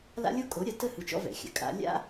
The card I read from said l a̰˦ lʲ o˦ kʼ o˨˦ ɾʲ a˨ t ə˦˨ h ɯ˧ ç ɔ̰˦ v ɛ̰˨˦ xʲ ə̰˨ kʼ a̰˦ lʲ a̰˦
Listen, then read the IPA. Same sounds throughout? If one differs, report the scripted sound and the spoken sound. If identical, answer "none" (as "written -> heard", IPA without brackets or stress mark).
ç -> t͡ʃ